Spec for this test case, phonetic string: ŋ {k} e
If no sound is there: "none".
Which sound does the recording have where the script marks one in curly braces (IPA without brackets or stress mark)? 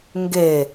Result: ɡ